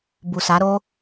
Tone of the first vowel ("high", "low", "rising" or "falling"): low